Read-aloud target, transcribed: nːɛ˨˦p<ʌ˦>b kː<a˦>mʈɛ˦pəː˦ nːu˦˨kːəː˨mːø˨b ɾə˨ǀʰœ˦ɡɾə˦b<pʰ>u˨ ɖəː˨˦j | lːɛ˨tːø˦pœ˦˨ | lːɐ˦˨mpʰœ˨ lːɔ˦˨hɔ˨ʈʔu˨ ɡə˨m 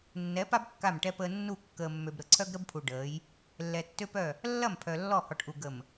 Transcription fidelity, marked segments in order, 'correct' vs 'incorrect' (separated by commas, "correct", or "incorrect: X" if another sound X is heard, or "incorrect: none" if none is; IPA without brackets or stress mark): incorrect: a˦, incorrect: a˦˨, correct